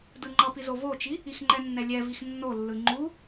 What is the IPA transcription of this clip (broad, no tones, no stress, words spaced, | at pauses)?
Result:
dɯŋ͡ǃʌpi zovot͡ʃi | ixŋ͡ǃɛnːɛ lʲɛ vixnːolːɯ ŋ͡ǃu